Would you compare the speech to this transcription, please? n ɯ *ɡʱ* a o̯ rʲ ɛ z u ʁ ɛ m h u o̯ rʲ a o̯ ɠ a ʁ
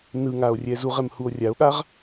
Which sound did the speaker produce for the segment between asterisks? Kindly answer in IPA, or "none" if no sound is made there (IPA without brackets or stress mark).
ŋ